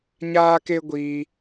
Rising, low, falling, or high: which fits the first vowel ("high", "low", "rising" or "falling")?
high